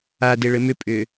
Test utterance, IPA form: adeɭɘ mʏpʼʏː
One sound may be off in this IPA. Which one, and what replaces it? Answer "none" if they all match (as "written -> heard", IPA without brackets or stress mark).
none